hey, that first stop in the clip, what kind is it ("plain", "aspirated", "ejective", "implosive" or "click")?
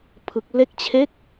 aspirated